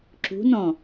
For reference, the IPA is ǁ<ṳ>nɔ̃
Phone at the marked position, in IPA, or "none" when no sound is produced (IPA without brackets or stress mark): ṳ